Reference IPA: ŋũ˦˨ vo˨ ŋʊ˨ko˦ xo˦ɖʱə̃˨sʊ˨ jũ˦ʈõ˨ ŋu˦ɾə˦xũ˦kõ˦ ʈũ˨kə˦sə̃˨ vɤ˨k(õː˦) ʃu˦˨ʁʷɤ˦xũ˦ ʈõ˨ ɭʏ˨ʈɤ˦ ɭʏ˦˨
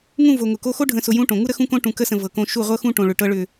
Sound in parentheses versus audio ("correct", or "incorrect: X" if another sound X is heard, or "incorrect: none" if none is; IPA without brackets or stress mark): incorrect: õ˦